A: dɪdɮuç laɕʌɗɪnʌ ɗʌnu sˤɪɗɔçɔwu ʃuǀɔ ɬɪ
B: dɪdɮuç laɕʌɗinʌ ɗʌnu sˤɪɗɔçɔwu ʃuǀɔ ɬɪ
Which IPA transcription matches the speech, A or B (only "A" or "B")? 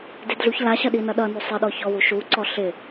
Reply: B